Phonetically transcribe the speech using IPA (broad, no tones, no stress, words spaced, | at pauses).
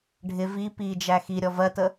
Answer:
ɖʱɪ vi pid͡ʒæ xiɾʲɔ vɜtə